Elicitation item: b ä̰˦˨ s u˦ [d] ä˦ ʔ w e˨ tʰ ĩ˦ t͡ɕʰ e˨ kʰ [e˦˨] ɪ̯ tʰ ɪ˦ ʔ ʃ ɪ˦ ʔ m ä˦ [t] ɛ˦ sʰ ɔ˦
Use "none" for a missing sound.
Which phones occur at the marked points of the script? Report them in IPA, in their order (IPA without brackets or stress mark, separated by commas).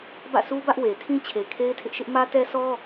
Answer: b, e˦, t